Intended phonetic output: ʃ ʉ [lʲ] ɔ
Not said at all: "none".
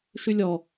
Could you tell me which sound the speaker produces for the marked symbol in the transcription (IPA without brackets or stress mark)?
lʲ